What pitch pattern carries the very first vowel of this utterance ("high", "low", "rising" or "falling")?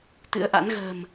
rising